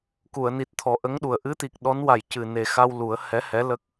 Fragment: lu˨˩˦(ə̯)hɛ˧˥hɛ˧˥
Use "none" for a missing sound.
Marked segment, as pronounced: ə̯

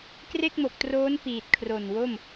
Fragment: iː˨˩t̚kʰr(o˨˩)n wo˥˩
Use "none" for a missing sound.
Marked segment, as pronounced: o˨˩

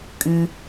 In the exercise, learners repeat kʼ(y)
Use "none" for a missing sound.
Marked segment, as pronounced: y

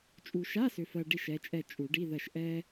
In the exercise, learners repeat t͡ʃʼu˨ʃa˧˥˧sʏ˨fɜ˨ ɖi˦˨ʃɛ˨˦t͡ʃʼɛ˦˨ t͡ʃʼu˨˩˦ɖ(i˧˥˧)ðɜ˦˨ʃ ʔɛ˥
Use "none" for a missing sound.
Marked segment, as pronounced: i˧˥˧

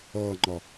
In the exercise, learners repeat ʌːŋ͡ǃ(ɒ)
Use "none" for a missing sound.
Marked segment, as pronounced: ɒ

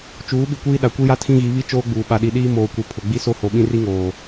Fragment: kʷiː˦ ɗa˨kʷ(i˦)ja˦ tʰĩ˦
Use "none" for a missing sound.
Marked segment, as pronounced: i˦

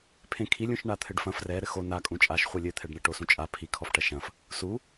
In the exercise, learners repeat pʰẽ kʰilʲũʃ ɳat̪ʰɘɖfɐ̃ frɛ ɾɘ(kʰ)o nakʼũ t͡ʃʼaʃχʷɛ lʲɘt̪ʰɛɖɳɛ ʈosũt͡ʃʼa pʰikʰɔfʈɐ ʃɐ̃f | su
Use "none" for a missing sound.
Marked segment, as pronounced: x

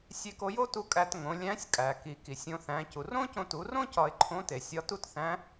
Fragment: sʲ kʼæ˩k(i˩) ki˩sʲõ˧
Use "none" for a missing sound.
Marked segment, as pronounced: i˩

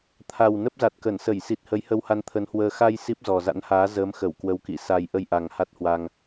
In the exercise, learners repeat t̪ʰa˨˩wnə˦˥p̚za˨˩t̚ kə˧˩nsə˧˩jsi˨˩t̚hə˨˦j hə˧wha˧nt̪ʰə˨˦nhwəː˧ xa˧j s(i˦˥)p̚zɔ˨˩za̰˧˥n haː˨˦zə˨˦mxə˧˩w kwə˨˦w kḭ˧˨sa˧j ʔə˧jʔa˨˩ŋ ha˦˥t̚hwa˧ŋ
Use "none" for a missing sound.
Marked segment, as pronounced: i˦˥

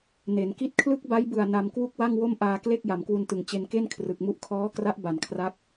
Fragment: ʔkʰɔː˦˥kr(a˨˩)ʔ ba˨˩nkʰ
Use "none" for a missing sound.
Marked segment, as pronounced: a˦˥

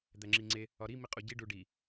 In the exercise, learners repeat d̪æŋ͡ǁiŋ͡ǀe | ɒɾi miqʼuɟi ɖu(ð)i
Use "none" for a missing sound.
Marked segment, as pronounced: ɖ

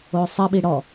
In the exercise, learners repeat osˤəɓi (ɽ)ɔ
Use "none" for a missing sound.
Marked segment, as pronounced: ɽ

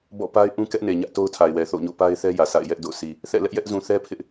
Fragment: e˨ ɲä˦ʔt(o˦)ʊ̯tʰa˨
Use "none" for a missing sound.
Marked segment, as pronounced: o˦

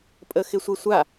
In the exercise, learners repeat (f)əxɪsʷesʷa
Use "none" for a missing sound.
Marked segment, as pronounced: pʼ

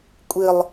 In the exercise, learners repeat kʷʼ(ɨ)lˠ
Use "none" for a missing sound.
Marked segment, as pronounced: ɨ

